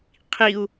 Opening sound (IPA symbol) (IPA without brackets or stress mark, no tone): qʰ